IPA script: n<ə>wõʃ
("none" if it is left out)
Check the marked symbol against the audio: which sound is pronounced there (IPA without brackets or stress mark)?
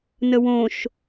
ə